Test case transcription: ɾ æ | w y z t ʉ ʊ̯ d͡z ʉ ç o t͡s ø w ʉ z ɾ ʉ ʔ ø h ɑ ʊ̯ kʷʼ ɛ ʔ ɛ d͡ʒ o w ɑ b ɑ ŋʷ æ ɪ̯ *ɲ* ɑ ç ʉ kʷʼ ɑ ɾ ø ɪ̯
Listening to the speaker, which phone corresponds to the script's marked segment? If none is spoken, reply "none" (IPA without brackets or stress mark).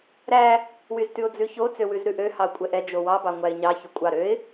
ɲ